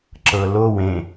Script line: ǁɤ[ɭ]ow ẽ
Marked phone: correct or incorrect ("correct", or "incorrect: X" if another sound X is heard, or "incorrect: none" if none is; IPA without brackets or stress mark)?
incorrect: l